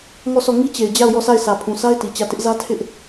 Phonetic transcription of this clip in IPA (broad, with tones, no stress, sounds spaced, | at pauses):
ŋ ɔ˦˨ s ɔ˦˨ ŋ i˦ t͡ɕ e˨ ɪ̯ d͡ʑ a˦˨ ʊ̯ j ɔ˦˨ sʰ a˦˨ ɪ̯ s ä˨ pʰ ũ˨ sʰ a˦ ɪ̯ t i˨ t͡ɕ ä˦˨ t ɪ˦ ʔ z ä˦ tʰ ɪ˦ ʔ